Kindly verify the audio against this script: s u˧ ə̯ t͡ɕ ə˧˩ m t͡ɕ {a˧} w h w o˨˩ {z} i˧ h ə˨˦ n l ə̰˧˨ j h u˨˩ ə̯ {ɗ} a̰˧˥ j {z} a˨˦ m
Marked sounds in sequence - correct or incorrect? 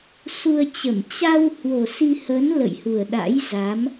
correct, incorrect: s, correct, correct

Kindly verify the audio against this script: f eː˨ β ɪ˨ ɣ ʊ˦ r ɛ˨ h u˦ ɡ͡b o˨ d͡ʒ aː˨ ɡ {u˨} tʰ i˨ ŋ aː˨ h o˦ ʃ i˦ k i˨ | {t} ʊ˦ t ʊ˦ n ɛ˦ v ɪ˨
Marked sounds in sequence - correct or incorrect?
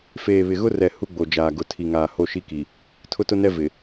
incorrect: ʊ˨, incorrect: tʰ

